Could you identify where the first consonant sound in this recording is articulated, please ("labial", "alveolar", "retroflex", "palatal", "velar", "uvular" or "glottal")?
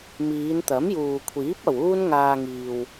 labial